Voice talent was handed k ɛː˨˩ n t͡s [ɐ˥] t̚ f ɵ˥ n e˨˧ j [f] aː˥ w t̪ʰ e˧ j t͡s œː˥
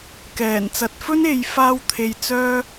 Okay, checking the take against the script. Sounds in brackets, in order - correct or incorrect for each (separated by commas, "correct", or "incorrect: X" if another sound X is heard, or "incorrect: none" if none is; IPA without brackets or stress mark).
incorrect: ɐ˨˥, correct